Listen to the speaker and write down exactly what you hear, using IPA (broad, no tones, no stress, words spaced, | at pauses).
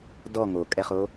dɔ ŋokʼɛχo